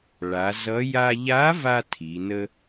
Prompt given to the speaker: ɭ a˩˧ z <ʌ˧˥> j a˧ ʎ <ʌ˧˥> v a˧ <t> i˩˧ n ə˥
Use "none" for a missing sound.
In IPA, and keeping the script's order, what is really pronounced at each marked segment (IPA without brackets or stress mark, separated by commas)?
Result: ʌ˧˥, a˧˥, tʰ